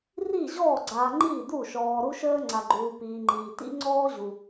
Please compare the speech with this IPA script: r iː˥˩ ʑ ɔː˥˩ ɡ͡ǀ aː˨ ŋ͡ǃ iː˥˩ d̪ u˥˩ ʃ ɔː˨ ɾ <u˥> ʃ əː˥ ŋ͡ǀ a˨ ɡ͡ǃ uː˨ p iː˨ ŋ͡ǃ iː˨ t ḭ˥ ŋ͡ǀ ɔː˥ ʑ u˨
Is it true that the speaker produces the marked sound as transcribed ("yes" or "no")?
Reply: yes